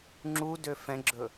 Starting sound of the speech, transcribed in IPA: ŋ͡ǁ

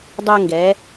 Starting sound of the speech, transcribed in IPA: dˤ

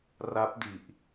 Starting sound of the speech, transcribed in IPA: r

